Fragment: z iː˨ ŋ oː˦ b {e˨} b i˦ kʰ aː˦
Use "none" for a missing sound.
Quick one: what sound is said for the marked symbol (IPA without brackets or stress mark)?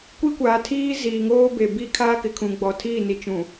e˨